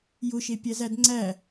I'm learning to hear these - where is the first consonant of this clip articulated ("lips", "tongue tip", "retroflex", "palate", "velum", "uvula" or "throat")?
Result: palate